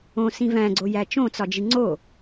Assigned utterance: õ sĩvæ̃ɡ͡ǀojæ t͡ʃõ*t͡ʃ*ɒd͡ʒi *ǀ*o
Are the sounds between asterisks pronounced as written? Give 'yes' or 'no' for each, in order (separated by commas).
no, no